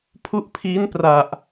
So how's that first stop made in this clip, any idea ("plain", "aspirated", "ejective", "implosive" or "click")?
aspirated